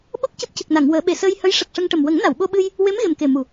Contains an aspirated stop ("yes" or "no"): no